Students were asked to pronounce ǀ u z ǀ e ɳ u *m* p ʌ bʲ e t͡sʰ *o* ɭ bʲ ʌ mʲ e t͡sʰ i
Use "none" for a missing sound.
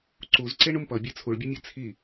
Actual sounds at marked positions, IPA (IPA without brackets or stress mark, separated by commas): m, u